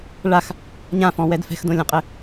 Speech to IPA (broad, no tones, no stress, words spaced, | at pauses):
ɭax | ɲãfɔ̃wɛd fɛ̤xdõlʲɔ̃qʼɘ